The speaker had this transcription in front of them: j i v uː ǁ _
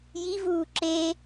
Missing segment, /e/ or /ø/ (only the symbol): e